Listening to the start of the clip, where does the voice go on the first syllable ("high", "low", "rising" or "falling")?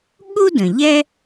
high